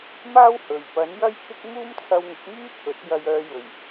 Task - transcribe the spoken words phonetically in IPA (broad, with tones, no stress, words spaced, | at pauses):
maː˥w hɵ˨˩ɥ pɐ˨˥njɐ˥jkʰɪ˥k̚ muː˥mt͡sʰɐ˧wŋʊ˨˥k̚myː˥ t̪ʰɵ˨˥t̚ jɐ˧jœː˧jɵ˨˩ɥ